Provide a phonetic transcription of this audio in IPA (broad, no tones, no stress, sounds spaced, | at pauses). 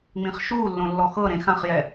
ŋ͡m ĩ χ ʃ u lː õ lː ɔ x ɤ ɾ ẽ x ã χ j ɛ